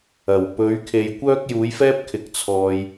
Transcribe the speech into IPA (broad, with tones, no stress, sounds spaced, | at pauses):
ɐ˨˩ w p ɵ˨˥ ɥ kʰ e˨ j kʷ œː˥ k̚ j uː˨˥ j f ɛː˥ p̚ kʰ ɪ˨ k̚ t͡sʰ ɔː˨ j